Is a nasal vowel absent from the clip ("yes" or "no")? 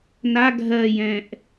no